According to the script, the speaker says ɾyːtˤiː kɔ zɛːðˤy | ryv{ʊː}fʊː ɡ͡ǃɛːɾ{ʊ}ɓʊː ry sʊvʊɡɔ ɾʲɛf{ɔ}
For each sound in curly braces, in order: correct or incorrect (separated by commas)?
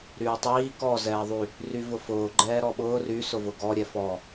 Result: incorrect, incorrect, correct